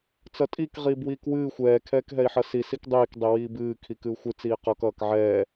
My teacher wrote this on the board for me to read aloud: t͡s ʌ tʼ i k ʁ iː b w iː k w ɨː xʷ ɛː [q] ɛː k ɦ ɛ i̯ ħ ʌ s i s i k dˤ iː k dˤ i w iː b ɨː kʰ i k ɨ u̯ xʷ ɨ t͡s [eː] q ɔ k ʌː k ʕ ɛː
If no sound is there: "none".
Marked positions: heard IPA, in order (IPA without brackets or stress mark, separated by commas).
kʰ, iː